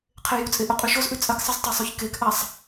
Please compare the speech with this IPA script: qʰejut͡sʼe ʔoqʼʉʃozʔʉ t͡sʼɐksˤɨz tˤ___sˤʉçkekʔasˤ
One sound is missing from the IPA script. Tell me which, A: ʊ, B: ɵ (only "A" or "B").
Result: B